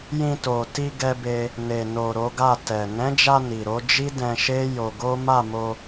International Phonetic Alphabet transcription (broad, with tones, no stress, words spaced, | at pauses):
jĩ˧to˨ ti˧ɡɛ˧be˧ | ne˨no˨ ɾo˨˦ɡa˦˨ tɛ˨ nɛ̃˨˦d͡ʒa˧ ni˨ɾo˨˦ d͡ʒi˦ dɛ̃˧ʃe˦ jo˧ɡo˦ ma˦˨mo˧